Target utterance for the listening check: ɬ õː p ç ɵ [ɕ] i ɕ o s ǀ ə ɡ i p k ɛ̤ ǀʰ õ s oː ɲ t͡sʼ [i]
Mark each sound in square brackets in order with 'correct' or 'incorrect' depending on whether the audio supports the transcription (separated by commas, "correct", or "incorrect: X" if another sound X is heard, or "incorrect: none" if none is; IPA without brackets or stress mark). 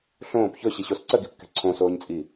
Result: correct, correct